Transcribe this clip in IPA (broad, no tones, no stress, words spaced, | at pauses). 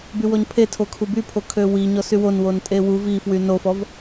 bywɔɲpʰe tʰokʰubypʰo kʰøwi ɲɔsywon wontʼewu vifwy nofɔv